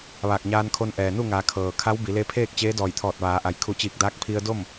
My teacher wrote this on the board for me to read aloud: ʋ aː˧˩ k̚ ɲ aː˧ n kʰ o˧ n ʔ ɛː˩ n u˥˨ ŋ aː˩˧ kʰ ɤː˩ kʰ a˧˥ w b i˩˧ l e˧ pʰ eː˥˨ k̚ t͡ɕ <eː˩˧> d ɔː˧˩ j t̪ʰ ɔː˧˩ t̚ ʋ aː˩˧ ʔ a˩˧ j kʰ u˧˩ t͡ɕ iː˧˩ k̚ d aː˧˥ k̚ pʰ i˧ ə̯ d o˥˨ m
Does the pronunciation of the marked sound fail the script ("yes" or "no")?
yes